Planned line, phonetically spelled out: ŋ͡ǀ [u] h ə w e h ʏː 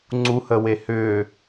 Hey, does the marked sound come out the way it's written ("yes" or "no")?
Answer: yes